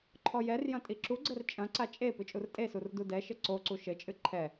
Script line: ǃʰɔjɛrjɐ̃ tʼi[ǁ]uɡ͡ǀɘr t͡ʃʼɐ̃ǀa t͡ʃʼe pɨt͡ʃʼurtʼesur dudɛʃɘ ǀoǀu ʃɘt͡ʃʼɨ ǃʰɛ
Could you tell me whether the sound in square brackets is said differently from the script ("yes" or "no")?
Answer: no